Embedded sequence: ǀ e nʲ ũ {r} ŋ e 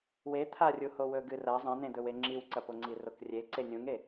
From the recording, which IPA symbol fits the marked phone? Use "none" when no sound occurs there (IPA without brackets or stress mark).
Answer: none